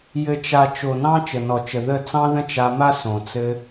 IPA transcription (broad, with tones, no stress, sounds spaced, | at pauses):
j ɘ˨ t͡ʃ a˨ t͡ʃ o˨ n ɑ̃˦ t͡ʃ ə˨ n ɔ˨ t͡ʃ ə˨ ð ə˦˨ t͡s ɑ̃˦ ð ə̃˦ t͡ʃ a˧ m a˦ s õ˨ t͡s ɘ˦